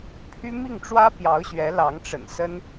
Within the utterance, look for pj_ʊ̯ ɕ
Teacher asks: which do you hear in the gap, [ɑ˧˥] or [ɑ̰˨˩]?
ɑ˧˥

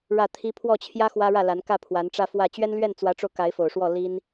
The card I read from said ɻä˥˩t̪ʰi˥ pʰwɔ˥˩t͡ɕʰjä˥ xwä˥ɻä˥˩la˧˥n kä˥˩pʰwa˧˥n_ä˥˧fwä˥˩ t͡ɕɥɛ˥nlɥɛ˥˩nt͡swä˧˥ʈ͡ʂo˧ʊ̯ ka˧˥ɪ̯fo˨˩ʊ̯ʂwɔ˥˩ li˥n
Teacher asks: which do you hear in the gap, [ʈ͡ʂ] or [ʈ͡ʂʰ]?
ʈ͡ʂ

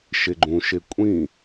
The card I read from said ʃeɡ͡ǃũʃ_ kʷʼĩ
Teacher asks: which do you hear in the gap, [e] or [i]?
e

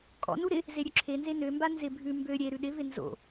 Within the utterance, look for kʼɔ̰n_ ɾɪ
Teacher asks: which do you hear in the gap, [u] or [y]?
u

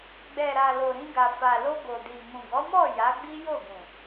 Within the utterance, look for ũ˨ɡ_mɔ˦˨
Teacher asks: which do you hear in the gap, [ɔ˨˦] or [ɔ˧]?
ɔ˨˦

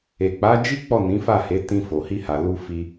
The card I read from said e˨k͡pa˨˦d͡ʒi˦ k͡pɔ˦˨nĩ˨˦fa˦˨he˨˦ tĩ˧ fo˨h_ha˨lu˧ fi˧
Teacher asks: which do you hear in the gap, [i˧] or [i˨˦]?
i˧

